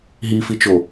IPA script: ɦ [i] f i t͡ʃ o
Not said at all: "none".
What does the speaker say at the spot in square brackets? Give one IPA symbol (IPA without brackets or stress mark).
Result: i